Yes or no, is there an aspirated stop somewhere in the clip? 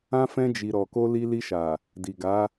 no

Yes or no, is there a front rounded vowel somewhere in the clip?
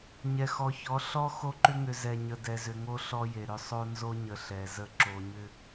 yes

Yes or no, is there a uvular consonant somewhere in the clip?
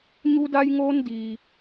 no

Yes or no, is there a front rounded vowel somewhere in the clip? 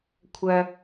yes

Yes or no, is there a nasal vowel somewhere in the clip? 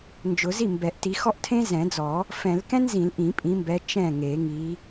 yes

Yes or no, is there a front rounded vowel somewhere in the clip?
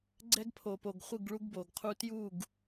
no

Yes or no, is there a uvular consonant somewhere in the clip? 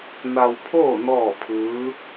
no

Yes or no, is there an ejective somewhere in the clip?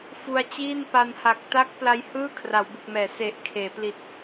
no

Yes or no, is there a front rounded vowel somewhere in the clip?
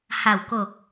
no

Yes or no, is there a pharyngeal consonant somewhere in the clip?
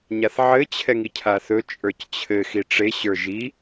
yes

